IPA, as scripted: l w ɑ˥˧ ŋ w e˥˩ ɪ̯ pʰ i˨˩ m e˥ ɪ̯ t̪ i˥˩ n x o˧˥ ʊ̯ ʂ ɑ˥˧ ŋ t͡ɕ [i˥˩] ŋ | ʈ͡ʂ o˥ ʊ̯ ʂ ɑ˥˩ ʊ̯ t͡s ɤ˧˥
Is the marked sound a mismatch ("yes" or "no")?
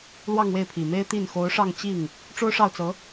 no